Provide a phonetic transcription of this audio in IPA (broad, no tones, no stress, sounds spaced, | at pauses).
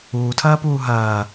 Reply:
uː tʰ ɐː p uː ɦ ɐː